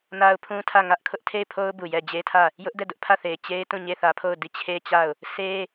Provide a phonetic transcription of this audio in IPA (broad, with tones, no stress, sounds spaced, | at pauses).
n a˦ ʊ̯ pʰ ũ˦ tʰ ä˦˨ ŋ ä˦ ʔ kʰ ʊ˦ ʔ tʰ e˦˨ ɪ̯ pʰ o˦ ʊ̯ b u˨ j ɛ˦˨ d͡ʑ e˦ tʰ ä˦˨ | j ʊ˦ ʔ d ɛ˦˨ d ʊ˦ ʔ pʰ ä˦˨ θ e˨ ɪ̯ t͡ɕ e˦ ɪ̯ t ũ˦˨ ɲ e˦˨ θ ä˦ pʰ o˦˨ ʊ̯ d i˦˨ t͡ɕʰ e˦ t͡ɕ a˦˨ ʊ̯ | s e˦